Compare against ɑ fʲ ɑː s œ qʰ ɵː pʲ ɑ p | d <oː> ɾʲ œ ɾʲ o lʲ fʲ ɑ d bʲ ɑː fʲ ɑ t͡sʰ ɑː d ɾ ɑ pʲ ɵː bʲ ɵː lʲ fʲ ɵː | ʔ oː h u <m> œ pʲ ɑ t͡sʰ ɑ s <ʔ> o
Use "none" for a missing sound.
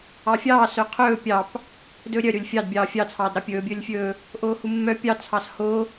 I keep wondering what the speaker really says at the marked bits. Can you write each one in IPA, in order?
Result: ɵː, mː, h

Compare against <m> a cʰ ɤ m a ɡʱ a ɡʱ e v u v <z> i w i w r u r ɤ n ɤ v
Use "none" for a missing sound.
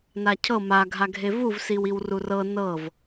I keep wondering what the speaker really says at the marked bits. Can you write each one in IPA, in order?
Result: n, s

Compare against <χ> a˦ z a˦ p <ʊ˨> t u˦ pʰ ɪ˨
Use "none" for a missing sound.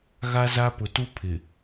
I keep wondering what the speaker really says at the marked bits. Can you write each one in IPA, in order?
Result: ɣ, ʊ˨

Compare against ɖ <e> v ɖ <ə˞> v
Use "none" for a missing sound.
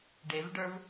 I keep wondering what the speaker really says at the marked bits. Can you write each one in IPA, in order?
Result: e, ə˞

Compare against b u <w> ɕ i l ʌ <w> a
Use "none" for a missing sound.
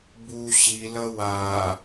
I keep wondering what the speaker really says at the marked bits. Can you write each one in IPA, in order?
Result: none, w

